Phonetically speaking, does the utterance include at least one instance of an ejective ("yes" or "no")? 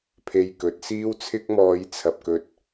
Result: no